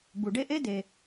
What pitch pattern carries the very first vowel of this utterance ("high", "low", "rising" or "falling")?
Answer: low